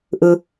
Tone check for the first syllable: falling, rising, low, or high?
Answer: low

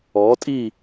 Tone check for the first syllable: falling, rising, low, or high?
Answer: rising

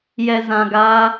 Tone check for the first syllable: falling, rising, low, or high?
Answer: low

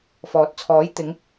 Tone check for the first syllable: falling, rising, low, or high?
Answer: rising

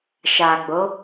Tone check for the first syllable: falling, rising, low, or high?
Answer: low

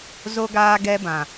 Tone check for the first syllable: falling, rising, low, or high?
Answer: high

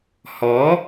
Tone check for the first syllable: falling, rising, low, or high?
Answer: rising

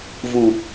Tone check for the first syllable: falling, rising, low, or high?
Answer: low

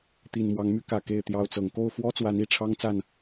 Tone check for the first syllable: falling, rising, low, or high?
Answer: low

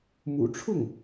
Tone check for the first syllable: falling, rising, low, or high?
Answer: low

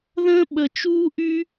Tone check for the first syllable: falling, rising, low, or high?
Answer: high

